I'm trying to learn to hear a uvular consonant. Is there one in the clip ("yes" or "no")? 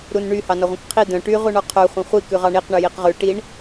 yes